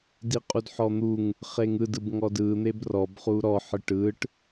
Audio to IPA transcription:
d i qʼ u d ħ ɔ n̪ u ŋ | χ e ŋ ɯ d ɯ b ŋ ɔ d ɯ n̪ e b r ɔ b χ u ɾ ɔ ħ ɯ ʈ ɯ ʈ

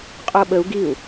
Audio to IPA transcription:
qʼ o ɓ ə u̯ ɡ i u̯

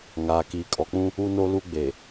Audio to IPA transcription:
ŋ aː˨ k iː˨ kʼ ɔ˨ k͡p ũ˦ | u˦ n o˦ l u˦ ɡ͡b e˨

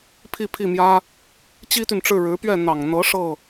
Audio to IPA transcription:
pʰ i˥˧ pʰ i˥˩ m j ä˥ | t͡ɕ i˥ t̪ y˨ n ʈ͡ʂ ɻ̩˥˩ ɻ ɻ̩˧˥ p ɥ ɛ˥˩ n̪ ɑ˨˩ ŋ n̪ ɤ˧˥ ʂ ɤ˥˩

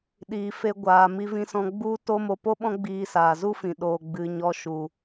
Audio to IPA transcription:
ɗ iː˨ f e˧ ɡʷ aː˨ m i˧ v ĩ˧ s ɔ̃˧ ɡ͡b u˦ t o˦ m o˧ p o˦ ɓ ɔ̃˦ ɡ͡b iː˧ s aː˨ z u˦ f ĩ˨ ɗ oː˨ ɡ͡b ɨ˨ ɲ ɔ˧ ʃ u˨

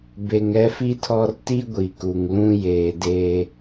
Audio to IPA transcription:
b e˨ ŋ ɛ˦ f i˦ tʰ ɔ˦ r t i˦ ɡʷ i˨ k u˨ ŋ l ũ˦ j eː˨ d eː˨

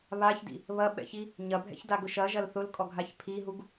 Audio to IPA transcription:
β a ç d ḭ | β ɐ ɓ ɛ̰ ç i | ɲ ɐ bʱ ɛ̰ ç d a ɡ ʊ ʃ ɐ ʒ ɐ l θ ʊ l kʼ ɔ ɡʱ a ç pʰ i ɦ u ɡ

